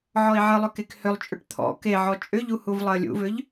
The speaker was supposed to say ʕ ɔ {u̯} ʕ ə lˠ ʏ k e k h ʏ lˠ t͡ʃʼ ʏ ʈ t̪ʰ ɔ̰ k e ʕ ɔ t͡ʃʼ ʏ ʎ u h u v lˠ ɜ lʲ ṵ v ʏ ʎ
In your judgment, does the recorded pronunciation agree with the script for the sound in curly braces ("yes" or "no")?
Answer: no